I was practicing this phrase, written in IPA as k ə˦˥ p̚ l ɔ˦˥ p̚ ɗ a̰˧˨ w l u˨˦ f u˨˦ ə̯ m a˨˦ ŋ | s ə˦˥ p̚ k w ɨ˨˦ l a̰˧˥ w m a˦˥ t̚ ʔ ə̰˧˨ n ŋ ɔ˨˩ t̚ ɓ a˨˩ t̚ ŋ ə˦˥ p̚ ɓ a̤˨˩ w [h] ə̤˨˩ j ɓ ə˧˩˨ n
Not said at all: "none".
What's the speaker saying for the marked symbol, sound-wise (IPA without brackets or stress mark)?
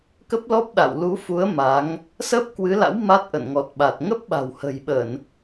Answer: h